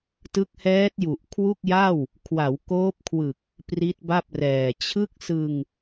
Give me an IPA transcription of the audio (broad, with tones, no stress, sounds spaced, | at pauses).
t ɯ˦˥ k̚ h ɛː˦˥ t̚ j u˨˩ ʔ kʰ w u˥˩ k̚ j a˥˩ w | kʰ w a˩˦ w k oː˦˥ p̚ kʰ w ɯ˨˩ k̚ | p r i˦˥ t̚ b a˥˩ p̚ r ɛː˨˩ t͡ɕʰ ɯ˥˩ k̚ s ɯ˧ ŋ